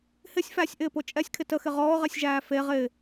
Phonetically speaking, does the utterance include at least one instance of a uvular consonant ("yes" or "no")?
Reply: yes